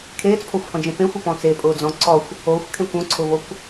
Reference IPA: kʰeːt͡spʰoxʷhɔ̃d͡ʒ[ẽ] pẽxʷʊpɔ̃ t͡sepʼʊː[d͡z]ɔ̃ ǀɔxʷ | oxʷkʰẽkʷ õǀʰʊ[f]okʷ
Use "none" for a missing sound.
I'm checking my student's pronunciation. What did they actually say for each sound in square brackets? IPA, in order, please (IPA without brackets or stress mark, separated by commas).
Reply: ẽ, d͡z, v